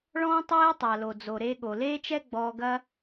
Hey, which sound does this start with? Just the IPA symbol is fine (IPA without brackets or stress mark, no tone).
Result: ɭ